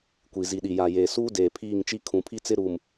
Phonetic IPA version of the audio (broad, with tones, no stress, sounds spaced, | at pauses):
kʷ i˨ z i˨ ɗ i˨ j a˨ j eː˨ s uː˦ d eː˨ pʰ iː˦˨ ŋ t͡ʃ i˦ kʰ ũ˨ pʰ i˦ t͡s ɪ˦ ɾ uː˨ m